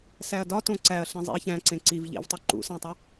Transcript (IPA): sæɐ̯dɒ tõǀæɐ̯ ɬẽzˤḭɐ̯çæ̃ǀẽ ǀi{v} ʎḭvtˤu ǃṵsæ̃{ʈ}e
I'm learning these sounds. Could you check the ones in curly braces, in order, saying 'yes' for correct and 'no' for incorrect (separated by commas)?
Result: yes, no